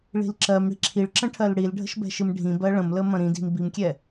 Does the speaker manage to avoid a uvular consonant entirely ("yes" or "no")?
yes